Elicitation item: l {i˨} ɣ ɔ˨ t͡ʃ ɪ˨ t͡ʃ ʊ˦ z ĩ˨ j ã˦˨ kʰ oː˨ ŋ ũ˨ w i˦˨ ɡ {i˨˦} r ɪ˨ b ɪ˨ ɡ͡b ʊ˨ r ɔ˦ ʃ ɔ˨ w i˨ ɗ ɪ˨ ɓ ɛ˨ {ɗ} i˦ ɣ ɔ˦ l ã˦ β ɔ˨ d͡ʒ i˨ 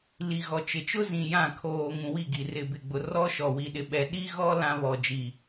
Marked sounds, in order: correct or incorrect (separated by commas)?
correct, incorrect, correct